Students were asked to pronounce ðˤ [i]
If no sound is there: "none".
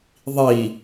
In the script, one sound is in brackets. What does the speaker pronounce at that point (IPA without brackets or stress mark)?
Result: i